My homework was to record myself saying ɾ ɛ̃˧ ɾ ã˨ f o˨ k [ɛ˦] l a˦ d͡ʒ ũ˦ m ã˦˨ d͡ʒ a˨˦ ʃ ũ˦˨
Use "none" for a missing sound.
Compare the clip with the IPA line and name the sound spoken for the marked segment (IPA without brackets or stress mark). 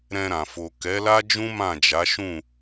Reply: ɛ˨˦